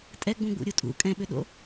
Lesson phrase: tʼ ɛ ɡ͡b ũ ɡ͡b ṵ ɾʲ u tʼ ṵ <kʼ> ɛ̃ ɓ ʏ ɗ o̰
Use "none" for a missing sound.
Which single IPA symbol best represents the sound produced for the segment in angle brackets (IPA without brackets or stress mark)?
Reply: kʼ